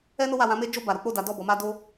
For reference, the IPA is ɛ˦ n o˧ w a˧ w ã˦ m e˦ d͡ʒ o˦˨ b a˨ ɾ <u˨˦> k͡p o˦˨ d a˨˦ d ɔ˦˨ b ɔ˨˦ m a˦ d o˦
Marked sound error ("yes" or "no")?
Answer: no